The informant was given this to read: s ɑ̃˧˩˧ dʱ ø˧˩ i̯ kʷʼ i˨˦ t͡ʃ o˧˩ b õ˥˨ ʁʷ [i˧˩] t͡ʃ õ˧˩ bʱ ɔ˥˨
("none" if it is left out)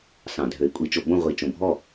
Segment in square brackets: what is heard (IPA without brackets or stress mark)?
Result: i˧˩